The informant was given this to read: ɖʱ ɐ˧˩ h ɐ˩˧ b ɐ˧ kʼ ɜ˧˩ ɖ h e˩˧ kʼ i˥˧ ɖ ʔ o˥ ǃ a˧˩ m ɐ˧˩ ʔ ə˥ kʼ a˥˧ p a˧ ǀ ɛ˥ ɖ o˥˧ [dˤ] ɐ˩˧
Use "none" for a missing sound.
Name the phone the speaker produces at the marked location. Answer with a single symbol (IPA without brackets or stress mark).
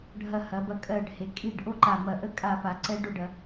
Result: ɖ